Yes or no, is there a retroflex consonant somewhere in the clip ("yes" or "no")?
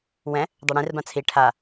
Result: yes